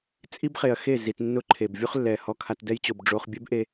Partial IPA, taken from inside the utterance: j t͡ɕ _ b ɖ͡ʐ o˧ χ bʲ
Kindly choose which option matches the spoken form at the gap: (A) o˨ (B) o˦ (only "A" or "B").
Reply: A